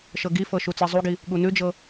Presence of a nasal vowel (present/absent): absent